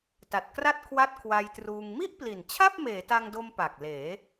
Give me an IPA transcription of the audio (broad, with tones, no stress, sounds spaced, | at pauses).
t a˨˩ t̚ k r a˥˩ t̚ kʰ w a˥˩ t̚ kʰ w a˧ j t r uː˧ ŋ m i˥˩ ʔ p l i˨˩ n t͡ɕʰ a˥˩ p̚ m eː˩˦ t a˧ ŋ d o˧ m p a˨˩ k̚ l eː˩˦